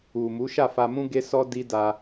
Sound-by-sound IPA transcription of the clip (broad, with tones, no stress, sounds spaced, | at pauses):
u˨ m u˨˦ ʃ a˦˨ f a˧ m ũ˦ ɡ e˦ s ɔ˦ d i˦ d a˧